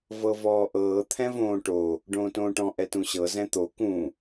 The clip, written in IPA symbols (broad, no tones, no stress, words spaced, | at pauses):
vɤvɔːʔɤː t̪ʰɛ̃võːʈo | ɖõːtõːʈɔ̃ ʔɛtũɕɤ zɛ̃t̪o kũ